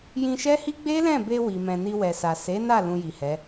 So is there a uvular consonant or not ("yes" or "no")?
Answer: no